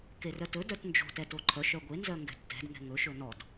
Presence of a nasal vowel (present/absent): absent